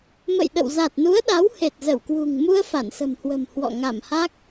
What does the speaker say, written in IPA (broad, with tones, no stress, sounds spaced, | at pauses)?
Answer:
m ə̰˧˨ j ɗ ə̰˧˨ w z a˨˩ t̚ n u˨˦ ə̯ ɗ a˨˦ w h e˨˩ t̚ z ə˧˩ w k w ṳ˨˩ ŋ m u˧ ə̯ f a˧˩ n s ə̤˨˩ m h w ə̤˨˩ m h w ɔ̰˧˨ ŋ a˧˩ m h a˦˥ k̚